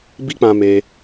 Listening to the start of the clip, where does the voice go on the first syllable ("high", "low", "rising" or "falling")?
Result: high